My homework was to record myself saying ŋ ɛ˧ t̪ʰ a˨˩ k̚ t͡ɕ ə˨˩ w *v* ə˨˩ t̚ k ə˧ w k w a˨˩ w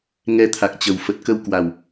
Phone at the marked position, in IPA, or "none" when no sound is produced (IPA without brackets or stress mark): f